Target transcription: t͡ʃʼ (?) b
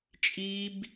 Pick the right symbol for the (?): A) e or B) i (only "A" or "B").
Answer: B